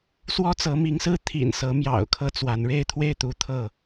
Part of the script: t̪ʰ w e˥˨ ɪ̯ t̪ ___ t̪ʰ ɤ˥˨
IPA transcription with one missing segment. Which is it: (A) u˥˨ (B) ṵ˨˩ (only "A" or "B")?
A